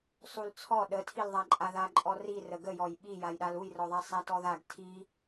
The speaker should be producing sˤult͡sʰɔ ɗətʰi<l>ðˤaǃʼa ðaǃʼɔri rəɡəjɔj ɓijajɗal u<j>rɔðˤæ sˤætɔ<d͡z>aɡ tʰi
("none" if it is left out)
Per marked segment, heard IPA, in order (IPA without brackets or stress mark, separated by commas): l, j, ð